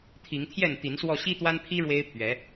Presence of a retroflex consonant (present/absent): present